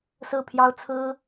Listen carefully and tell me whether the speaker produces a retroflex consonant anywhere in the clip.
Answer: no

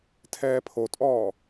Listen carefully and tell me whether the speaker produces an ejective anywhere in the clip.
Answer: yes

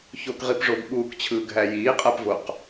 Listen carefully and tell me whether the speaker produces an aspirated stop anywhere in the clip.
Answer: yes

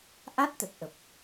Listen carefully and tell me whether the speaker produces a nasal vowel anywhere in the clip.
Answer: no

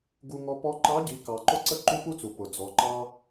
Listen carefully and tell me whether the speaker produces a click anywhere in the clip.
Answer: yes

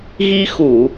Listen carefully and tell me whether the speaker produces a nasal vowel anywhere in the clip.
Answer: no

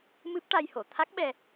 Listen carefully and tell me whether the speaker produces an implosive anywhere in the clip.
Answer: yes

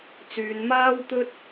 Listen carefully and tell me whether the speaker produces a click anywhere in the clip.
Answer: no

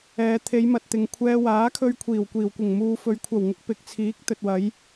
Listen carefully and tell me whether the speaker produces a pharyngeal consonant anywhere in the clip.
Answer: no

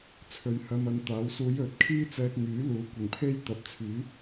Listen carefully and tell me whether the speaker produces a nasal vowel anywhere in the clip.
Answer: no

